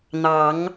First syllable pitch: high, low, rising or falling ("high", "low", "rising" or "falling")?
rising